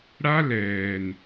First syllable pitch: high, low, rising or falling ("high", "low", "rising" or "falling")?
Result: high